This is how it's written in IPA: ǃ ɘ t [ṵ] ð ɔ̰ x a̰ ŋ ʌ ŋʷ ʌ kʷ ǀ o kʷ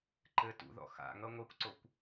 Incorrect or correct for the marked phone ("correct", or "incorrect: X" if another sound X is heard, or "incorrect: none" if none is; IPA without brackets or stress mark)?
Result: correct